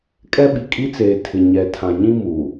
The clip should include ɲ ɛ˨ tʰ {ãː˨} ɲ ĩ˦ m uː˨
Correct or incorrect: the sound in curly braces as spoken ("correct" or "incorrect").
incorrect